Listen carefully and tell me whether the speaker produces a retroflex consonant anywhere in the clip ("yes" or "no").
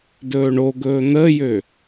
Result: yes